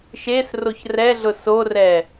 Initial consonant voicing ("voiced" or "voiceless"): voiceless